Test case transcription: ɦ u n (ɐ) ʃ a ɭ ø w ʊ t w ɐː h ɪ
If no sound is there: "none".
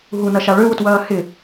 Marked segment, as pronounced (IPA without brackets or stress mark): ɐ